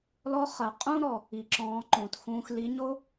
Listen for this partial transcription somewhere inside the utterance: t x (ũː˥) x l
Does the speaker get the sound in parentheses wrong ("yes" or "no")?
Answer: yes